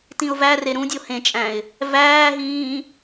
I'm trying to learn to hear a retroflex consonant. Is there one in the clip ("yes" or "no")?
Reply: no